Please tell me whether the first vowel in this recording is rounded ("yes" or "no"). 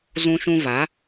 yes